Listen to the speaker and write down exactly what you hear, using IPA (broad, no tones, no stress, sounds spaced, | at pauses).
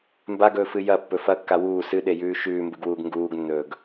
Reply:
m b a ɡ ɵː f ɨ j ɐ pː ɵ f ɐ kː a w uː s ɨ ɗ e j ʉː ʃ ʉː m b ɨ ɡ w uː ɡ ŋ ɡ uː ɡ nː ɵː ɡ